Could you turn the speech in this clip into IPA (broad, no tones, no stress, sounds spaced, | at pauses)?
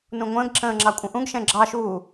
n ũ ŋʷ ə̃ː ɡ ǁ ə̃ː ŋ͡ǁ ɑ kʷʼ ə̃ ʔ ũ ɡ ʃ ɛ̃ ɡ͡ǁ ɑ ʃ uː